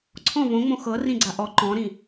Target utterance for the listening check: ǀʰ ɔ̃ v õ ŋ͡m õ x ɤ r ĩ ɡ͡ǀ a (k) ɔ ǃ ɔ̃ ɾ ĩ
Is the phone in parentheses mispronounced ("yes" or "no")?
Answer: yes